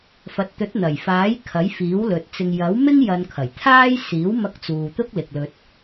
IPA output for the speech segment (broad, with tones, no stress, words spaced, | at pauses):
fɐ˨t̚t̪ɵ˨˥t̚n̪ɐ˨˩jfaː˨˥j kʰɐ˨˥jfiː˨˥wlɵ˨t̚ t͡sɪ˨ŋjɐ˨˥w mɪ˥ŋ jɐ˧nkʰɐ˨˩jt̪ʰaː˥j siː˨˥wmɐ˧k̚t͡suː˨ t̪ʊ˥k̚lɪ˨k̚lɵ˧t̚